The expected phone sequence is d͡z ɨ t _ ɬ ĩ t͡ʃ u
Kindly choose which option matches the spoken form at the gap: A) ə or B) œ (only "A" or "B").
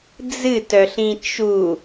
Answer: B